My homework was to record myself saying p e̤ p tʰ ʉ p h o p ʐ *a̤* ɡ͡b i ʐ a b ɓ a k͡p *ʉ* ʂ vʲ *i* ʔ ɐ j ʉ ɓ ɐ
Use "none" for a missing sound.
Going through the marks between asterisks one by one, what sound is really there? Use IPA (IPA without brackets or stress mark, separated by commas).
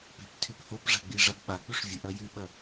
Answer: a̤, ʉ, ɨ